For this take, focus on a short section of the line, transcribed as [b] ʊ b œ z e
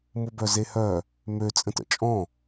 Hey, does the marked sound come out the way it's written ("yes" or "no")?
no